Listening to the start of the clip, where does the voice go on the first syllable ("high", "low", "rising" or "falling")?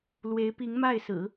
rising